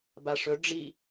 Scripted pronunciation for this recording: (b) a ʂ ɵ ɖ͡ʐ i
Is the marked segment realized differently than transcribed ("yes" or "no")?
no